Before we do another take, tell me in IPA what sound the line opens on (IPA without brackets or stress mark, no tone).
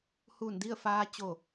h